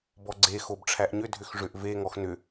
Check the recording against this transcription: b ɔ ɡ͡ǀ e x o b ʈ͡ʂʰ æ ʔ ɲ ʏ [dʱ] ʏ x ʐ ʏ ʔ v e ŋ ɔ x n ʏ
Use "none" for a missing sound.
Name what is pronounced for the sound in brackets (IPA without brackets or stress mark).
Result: dʱ